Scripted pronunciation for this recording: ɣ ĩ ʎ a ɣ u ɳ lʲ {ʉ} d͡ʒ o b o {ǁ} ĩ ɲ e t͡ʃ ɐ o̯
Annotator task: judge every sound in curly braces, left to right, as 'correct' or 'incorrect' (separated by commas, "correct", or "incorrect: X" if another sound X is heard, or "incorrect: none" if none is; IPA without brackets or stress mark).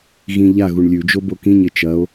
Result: correct, incorrect: k